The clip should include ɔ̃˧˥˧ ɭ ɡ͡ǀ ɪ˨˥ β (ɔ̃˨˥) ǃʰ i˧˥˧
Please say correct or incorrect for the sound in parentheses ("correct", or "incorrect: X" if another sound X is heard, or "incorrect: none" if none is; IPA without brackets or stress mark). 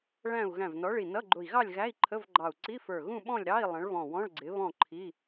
incorrect: ɔ̃˥˨